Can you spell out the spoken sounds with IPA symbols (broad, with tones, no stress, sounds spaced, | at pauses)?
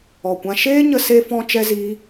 ɔ˨ kʷ ã˧ ʃ eː˦ ɲ ə˧ s e˧ f ɔ̃˧ t͡ʃ ɛ˦ z iː˦